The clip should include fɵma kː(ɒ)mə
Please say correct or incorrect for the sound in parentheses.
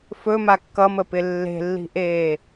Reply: incorrect